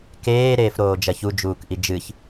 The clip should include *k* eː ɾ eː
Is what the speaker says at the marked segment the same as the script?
yes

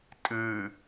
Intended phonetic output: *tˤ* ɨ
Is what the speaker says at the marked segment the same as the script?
no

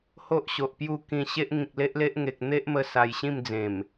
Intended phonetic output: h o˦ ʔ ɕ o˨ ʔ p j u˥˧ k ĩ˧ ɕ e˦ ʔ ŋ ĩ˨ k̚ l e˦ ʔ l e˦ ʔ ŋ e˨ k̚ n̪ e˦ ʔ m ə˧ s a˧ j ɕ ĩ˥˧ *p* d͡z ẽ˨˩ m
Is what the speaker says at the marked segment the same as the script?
no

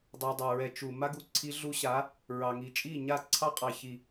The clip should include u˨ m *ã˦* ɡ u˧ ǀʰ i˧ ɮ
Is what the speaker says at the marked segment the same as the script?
no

